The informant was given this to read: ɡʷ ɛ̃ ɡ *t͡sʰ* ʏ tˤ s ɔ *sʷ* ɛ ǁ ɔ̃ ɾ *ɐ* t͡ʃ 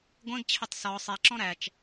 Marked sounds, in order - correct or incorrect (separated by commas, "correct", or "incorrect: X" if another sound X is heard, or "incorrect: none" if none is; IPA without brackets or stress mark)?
incorrect: t͡ɕʰ, incorrect: sˤ, incorrect: æ